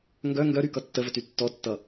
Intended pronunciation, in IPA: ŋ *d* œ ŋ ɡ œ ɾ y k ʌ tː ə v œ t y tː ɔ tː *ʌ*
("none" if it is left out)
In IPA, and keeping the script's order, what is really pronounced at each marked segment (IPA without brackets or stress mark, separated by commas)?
ɡ, ʌ